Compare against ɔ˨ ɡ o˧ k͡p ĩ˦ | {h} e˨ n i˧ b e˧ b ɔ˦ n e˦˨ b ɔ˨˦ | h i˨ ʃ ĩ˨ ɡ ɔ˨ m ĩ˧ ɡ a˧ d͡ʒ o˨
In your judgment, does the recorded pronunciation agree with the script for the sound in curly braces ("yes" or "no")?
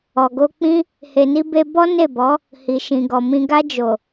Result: yes